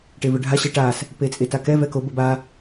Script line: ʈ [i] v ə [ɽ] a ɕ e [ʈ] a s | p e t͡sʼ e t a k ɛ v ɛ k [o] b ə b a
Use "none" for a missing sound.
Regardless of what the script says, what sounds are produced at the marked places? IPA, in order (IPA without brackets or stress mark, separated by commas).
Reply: e, ɖʱ, ʈ, o